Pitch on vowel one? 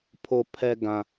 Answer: low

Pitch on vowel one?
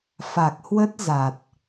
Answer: low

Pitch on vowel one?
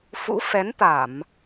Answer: rising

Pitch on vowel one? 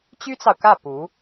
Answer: high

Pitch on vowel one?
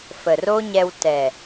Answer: low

